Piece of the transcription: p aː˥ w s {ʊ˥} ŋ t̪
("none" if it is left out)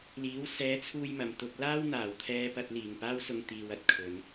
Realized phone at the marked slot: ʊ˧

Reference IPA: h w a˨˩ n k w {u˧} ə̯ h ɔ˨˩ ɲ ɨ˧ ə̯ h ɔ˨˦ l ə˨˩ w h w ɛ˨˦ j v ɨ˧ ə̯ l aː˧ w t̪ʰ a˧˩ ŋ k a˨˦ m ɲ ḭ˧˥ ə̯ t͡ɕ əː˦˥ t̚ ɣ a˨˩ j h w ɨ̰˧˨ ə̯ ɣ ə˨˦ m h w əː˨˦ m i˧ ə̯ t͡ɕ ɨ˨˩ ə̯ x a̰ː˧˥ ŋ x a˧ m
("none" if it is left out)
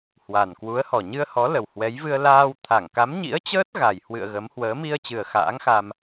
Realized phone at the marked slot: u˨˦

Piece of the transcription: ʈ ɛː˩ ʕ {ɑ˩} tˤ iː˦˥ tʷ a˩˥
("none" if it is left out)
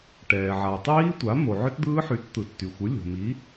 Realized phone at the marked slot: a˩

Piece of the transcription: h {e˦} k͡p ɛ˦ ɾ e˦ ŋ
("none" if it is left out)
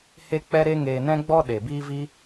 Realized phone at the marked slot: e˦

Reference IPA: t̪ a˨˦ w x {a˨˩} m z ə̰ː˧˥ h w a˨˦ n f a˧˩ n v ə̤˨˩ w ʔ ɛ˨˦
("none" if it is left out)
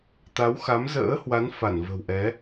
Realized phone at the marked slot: a˨˦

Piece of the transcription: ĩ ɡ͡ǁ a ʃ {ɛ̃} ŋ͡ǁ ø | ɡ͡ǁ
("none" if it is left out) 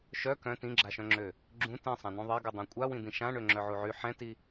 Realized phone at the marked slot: œ̃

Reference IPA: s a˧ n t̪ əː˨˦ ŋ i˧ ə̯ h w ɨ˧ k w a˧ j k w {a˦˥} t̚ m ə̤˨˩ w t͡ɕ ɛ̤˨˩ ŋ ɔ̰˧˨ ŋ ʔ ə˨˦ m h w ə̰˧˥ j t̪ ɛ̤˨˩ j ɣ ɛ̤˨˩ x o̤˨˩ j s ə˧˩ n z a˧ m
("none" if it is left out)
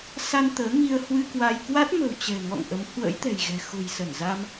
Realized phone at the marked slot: a˦˥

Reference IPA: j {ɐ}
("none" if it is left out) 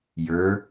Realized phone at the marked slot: ə˞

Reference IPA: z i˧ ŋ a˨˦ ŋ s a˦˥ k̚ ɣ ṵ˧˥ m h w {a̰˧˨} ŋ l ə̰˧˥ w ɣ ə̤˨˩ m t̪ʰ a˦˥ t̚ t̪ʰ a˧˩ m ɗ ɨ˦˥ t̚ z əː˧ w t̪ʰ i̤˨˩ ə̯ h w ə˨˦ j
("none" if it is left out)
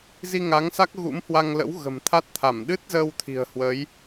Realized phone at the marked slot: a˧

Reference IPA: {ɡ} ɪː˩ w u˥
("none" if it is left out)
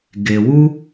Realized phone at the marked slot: ɡ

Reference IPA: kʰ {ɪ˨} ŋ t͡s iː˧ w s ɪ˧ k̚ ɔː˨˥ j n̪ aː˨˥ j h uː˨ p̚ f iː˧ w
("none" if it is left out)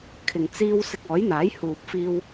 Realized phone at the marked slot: ɪ˨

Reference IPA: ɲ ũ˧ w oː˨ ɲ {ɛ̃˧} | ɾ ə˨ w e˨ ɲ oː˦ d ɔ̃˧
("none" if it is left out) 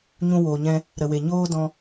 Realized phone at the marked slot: ɛ̃˧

